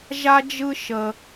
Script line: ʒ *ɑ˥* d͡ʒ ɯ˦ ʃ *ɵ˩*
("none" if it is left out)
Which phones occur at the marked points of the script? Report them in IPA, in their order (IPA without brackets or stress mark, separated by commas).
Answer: a˥, ə˩